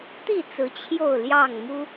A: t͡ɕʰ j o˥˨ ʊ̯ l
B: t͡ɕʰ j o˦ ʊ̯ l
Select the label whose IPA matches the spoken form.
A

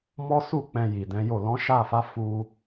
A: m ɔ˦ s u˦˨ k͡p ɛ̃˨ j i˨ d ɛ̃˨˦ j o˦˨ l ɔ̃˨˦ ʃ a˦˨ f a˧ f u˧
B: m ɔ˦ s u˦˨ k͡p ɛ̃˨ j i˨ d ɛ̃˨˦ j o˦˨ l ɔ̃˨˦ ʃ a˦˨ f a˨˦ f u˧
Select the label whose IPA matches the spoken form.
B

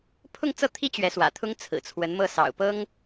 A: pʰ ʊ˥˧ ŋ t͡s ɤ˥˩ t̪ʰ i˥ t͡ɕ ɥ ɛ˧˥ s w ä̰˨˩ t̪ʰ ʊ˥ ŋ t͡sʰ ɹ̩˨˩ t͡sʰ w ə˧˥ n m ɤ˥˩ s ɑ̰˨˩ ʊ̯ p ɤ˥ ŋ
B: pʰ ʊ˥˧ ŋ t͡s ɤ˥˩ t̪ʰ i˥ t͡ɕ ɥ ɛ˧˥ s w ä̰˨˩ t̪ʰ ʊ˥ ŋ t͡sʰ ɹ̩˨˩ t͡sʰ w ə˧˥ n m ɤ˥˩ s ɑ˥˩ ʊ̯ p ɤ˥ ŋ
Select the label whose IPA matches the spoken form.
A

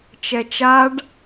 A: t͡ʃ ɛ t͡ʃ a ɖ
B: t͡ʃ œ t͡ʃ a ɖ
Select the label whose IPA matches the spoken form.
A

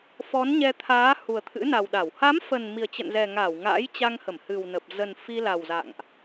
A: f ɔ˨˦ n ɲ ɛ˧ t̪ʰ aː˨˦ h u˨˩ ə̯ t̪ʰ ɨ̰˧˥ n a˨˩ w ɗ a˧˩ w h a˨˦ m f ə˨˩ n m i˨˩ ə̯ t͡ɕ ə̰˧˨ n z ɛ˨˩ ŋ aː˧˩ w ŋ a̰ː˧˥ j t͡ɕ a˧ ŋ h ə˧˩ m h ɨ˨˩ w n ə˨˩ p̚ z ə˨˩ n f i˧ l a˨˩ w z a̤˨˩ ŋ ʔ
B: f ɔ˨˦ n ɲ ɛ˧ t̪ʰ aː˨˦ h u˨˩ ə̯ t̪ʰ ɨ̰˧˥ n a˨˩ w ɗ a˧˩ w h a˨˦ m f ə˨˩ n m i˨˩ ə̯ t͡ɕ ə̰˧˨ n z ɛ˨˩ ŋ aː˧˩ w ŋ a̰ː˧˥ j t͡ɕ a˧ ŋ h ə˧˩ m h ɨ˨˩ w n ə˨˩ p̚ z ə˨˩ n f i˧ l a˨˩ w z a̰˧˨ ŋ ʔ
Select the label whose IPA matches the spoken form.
B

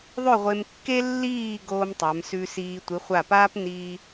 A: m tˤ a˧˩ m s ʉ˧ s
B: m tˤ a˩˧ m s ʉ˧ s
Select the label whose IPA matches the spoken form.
B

